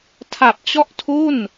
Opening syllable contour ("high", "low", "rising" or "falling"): low